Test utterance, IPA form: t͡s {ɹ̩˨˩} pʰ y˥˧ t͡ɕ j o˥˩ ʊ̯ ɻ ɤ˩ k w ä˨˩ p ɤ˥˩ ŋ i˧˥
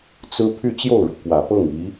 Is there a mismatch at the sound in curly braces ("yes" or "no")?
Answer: yes